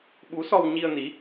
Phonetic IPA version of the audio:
ɓ u˨˦ s ɔ˧ w ɲ i˧ ə̯ n i˨˦

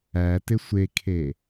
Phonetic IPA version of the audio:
æ t ɪ sʷ e kʰ e

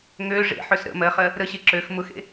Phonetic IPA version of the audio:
ŋ ø ʐ ḛ ħ ø s ɾ ə̰ m ɜ χ ɜ | ɾ ə ɕ e ǁ ø x m ʊ x ḛ

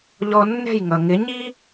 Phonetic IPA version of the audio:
ʎ ɔ˧ nː ɛ̤˥˩ j ŋ ʌ˩ ŋ ɪ˩˥ ɲ i˥

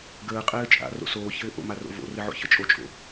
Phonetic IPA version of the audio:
ɡ əː qʼ ɘː t͡ʃʼ a̰ r o̰ s oː ç ɘː ʔ o̰ m a r o̰ v o̰ r ɘ ʕ o̰ ç ɘ t͡ʃʼ o t͡ʃʼ o̰

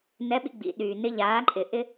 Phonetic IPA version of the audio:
n ɛ˧˥ ɓ ḭ˧ ɡ͡b ḭ˩˧ ɗ yː˩ n ɪ˧ ʎ aː˩˧ ǃʼ ɪ˩ ʔ ɪ˧

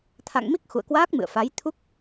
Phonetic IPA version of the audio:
t̪ʰ a̰˧˨ ŋ m i˦˥ k̚ x ṵ˧˨ ə̯ k w aː˦˥ k̚ m ɨ̰˧˨ ə̯ f a˨˦ j t̪ʰ u˦˥ k̚

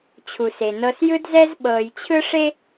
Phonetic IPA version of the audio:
t͡ɕʰ u˩ s e˩ n ɤ˨ s j ɯ˦ d z ɛ˦ z ɓ ɤː˨ j t͡ɕʰ ɯ˥ ʂ e˥

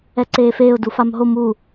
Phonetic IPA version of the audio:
ɛ ǀ eː f eː ʊ̯ d u f a m ɦ o m u

